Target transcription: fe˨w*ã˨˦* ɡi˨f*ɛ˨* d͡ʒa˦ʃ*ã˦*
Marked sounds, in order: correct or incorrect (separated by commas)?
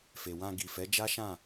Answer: incorrect, incorrect, incorrect